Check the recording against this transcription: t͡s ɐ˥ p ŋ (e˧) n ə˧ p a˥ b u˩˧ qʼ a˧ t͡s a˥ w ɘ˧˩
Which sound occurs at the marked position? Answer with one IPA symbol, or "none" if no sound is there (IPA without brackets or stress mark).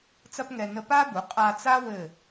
ɛ˧